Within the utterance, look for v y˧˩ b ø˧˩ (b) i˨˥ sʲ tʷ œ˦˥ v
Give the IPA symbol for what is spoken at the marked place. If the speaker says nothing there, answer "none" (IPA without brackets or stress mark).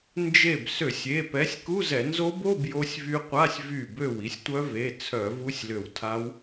w